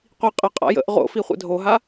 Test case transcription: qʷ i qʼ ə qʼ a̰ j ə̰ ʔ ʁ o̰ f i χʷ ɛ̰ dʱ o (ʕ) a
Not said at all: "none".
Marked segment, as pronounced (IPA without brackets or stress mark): ɦ